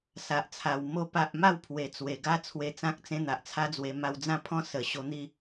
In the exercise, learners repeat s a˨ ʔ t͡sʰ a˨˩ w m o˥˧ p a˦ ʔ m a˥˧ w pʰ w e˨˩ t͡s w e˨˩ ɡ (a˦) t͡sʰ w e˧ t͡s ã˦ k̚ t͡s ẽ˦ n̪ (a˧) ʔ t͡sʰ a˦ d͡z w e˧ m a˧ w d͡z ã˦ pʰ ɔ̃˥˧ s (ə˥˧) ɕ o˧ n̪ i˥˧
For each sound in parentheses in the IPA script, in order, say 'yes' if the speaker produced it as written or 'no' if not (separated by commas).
yes, no, no